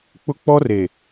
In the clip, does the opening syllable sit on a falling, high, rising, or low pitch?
high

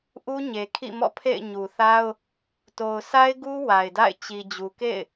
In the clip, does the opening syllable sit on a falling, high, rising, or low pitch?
high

